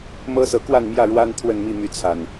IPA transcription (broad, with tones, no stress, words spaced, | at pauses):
mɤ˦sɤ˨˦kwa˥˨nmjä˥˨ ɻwa˦n t̪ʰwə˥˨nmi˥˨my˨˦t͡sʰa˨˩n